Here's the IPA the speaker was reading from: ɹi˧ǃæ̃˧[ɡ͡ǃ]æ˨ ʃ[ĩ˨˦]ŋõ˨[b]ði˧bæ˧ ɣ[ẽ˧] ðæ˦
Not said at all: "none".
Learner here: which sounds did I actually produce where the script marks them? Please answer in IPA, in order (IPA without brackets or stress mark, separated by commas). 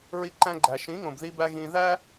ɡ͡ǃ, ĩ˨˦, b, ĩ˧